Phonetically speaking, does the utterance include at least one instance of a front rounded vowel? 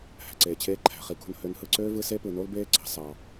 yes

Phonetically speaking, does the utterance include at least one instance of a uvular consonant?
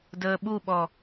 no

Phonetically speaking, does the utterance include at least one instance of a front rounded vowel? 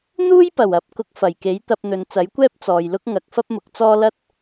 no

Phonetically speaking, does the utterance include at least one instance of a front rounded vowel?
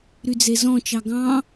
yes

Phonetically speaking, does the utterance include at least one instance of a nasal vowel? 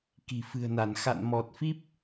no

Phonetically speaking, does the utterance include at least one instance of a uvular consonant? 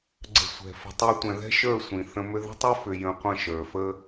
yes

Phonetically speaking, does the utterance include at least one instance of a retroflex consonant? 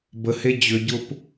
no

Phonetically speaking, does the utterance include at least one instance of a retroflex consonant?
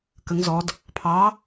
no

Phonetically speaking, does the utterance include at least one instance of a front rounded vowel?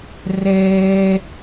no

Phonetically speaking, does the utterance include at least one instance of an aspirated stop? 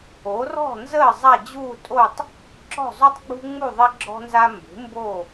no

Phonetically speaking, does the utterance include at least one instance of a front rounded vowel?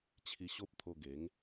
no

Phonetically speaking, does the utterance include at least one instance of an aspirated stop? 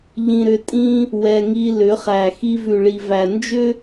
no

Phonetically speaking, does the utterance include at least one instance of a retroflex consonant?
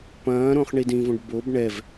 yes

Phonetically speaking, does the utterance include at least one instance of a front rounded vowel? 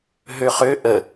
yes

